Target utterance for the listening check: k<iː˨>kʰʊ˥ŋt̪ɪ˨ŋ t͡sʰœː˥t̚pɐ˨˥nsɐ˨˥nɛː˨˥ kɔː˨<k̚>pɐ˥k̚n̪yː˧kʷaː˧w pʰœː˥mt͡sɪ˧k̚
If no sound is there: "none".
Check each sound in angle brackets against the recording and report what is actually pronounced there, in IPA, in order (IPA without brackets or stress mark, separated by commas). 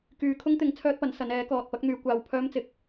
yː˨, t̚